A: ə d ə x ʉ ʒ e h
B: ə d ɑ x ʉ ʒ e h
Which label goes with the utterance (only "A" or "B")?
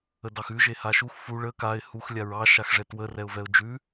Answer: B